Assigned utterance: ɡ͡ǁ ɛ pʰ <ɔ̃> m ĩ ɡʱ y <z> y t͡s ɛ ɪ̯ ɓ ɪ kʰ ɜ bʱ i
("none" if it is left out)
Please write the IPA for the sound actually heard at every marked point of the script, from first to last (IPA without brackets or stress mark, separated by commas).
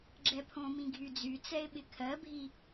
õ, d͡z